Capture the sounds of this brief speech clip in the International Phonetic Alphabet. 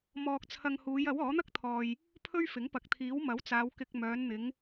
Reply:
m ɔː˧ k̚ t͡sʰ ɐ˧ ŋ h uː˨˧ j ɐ˨˥ w ɔː˨˥ n̪ ɐ˥ k̚ t̪ʰ ɔː˨ j | pʰ ɵ˥ ɥ f ɪ˨˥ ŋ p ɐ˨˥ k̚ t̪ʰ iː˨˥ w m ɐ˨˥ w t͡s aː˨˧ w k ɪ˧ k̚ m œː˨˧ n n̪ ɪ˨˧ ŋ

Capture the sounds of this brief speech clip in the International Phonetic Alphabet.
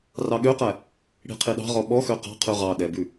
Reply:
r ɑ ɠ ø q æ | ɽ i̤ qʰ i ɗ ɑ̤ ʁ ɔ ɓ ɔ x ø q ɑ̤ qʰ ʉ ʁ ɑ ɗ ɛ b ʉ

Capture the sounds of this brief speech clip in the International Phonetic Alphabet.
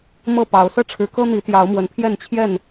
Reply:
m ɤ˥˨ p ɑ˨˦ ʊ̯ s ɤ˦ ʈ͡ʂʰ ɻ̩˨˦ k ɤ˦ n̪ i˨˦ t̪ j ɑ˨˦ ʊ̯ m w ə˨˦ n pʰ j ɛ˥˨ n t͡ɕʰ j ɛ˥˨ n

